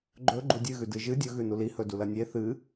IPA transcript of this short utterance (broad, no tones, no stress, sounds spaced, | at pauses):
ɡ͡ǃ ɵ ɡ͡ǃ u dʲ ɨ ɣ ʉ d ɨ ʒ ɨ dʲ ɵ ɣ ʉ n u l i h ɵ d u l ɐ nʲ e θ ɨ